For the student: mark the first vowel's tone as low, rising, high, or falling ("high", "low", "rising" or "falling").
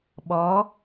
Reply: rising